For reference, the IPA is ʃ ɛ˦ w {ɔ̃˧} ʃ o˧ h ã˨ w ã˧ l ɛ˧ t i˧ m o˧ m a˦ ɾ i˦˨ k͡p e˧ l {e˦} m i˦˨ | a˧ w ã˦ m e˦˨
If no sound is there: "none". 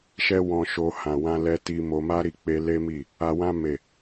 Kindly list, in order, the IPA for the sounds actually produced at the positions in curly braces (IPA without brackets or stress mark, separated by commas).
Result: ɔ̃˧, e˦